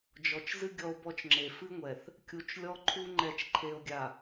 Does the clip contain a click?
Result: yes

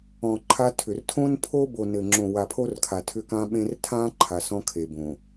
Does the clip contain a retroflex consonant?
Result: no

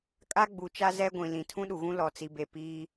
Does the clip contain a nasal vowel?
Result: yes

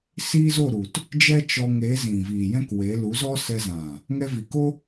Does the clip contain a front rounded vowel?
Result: no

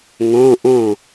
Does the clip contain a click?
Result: no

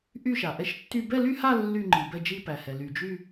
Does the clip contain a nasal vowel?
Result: no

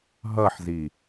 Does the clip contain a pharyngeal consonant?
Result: yes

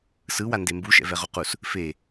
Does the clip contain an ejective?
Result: no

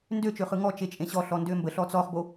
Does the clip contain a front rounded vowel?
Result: yes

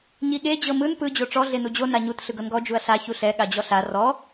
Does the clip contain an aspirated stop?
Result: no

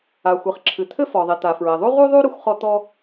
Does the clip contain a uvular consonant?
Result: yes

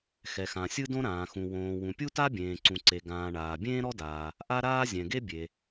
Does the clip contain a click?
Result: yes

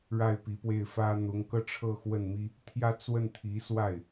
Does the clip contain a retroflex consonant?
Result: yes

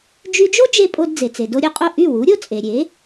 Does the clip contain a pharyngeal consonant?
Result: no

